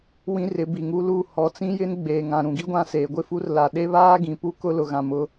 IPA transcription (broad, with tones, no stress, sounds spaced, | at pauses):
w ĩ˦ r ɪ˨˦ b i˨ ŋ u˦ l u˦˨ h ɔ˨˦ t͡s ĩ˦ j ɪ˦ n ɡ͡b eː˨ ŋ ã˨ ɾ ũ˨ ɡ i˦ ɡʷ ã˦˨ s eː˨ ɡʷ ɪ˦ f u˦ r l a˨ ɗ e˦ β aː˦ ɡ ĩ˨ p u˦ k ʊ˦ l ʊ˨ ɣ ã˨ m ʊ˦